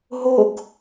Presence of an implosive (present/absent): absent